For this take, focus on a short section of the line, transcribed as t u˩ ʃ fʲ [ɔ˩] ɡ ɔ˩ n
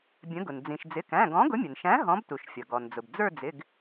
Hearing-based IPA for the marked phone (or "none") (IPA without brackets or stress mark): ʌ˩